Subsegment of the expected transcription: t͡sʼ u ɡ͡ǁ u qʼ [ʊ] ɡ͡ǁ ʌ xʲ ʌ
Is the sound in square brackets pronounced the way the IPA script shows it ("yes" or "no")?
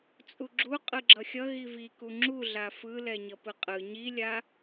no